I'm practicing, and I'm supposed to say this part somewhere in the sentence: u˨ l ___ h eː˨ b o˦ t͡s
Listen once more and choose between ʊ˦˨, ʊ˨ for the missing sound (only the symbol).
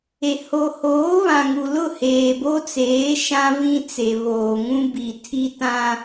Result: ʊ˦˨